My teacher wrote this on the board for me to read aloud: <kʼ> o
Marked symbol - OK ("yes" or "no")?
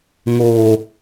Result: no